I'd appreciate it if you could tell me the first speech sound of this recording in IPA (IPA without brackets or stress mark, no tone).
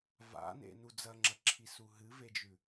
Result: v